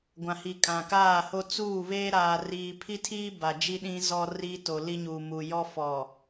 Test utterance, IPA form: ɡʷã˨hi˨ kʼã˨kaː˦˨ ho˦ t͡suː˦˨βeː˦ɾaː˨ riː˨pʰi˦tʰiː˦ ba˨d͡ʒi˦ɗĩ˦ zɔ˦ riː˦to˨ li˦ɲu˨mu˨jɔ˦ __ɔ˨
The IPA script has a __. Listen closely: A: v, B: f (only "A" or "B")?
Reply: B